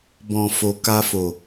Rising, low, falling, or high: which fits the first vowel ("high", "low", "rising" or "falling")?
low